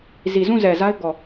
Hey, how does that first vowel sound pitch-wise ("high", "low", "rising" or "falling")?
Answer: low